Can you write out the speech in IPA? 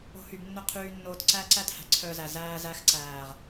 o̤˦ h y˧ b nː ɵ˦ qʰ yː˧ nː oː˧ t ǀ æ˦ ǀ æ˦ t h æ̤˨ ǀʰ œ˧ z æ˨ z æː˧ z æ˧ x ǀ æː˨ ʁ

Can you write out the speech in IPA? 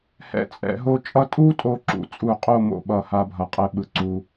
h ɛ̰˧˩ t͡sʼ ɛ̰˩˧ ɦ o˥˧ t͡ʃʼ ʌ˥ tʼ u˥ tʼ o˧ ǁ ṵ˩˧ t͡sʼ u˧˩ qʼ o˥˧ m o̰˧˩ ɓ ʌ˧˩ h a˧ bʱ ʌ˧˩ qʼ ɛ˥˧ ɓ ɯ˧ ǀ u˧

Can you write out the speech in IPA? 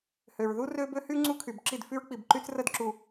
h ø˨ ɹ ð u˦ r ø˦ b ø˦ h y˦ ŋ͡ǀ u˦ kʰ y˨ b ǁ i˦˨ d f y˦ ɹ k͡p i˨ b ǃ y˦ t͡s r ə˦˨ d ǁ u˨

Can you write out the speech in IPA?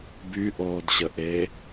b y ʔ oː d ɕ ə ʔ eː

